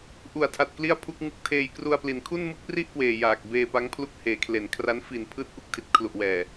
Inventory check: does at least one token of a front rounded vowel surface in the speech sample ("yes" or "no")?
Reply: no